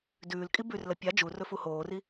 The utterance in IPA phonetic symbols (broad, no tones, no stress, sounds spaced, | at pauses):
d ʉː l kʼ i b ʉ r l ɐ pʲ a d͡ʒ u r ɵ f u h oː r i